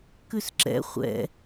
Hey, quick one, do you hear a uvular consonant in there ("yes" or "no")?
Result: yes